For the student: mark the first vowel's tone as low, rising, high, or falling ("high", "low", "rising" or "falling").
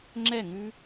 falling